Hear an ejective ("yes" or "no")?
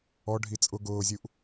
yes